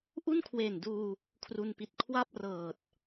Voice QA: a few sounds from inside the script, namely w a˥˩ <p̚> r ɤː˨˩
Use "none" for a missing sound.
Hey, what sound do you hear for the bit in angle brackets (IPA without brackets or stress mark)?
p̚